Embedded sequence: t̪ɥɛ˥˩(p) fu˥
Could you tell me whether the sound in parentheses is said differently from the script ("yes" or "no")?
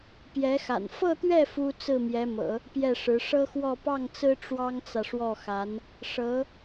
yes